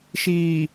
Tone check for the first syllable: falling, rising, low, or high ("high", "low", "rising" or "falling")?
low